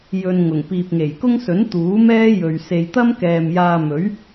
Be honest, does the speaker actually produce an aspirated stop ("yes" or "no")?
no